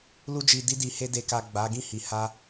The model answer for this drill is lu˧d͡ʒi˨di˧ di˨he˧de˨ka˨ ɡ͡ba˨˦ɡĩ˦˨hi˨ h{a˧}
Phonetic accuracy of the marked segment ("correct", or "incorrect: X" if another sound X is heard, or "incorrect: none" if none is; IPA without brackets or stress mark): correct